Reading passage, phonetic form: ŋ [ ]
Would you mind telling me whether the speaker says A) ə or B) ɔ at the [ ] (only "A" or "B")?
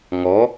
B